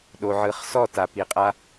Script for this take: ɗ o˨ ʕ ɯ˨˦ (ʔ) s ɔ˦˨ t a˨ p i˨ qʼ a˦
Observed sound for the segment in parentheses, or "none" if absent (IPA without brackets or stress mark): χ